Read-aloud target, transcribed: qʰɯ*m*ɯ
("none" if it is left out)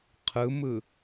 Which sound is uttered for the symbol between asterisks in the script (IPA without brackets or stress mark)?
m